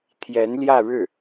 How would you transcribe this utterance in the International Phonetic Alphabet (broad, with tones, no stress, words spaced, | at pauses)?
t̪ʰjɛ˧˥nljä˥˧ɻɻ̩˥˩